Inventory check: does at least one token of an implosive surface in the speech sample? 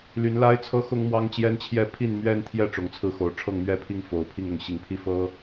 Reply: no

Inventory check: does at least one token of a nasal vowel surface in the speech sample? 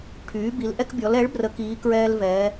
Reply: no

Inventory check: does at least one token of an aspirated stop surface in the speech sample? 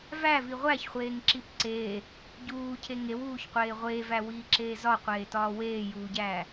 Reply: yes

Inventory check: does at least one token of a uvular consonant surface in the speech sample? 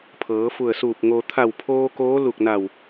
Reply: no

